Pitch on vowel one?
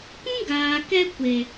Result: high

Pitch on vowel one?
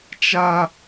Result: high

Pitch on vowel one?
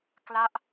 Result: falling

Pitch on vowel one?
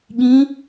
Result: rising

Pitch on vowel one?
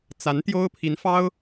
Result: rising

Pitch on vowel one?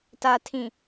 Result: low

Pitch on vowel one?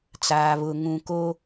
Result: low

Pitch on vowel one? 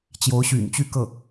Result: rising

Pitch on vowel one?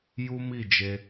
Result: high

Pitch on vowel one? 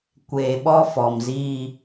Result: low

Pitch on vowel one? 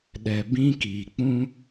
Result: low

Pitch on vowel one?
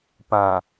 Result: low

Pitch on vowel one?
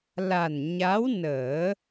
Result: low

